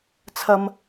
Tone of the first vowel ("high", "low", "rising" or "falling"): high